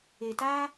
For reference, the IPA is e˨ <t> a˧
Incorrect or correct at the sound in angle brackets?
correct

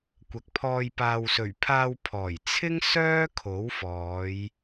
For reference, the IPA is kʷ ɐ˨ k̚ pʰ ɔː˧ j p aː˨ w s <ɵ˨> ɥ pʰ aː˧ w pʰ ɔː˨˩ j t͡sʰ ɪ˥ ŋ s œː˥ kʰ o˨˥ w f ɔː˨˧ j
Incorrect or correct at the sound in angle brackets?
incorrect: ɵ˨˩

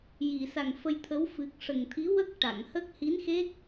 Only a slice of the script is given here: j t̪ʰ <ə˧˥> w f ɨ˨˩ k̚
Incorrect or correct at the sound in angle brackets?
correct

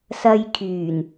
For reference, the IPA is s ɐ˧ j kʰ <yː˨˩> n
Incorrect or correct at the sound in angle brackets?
correct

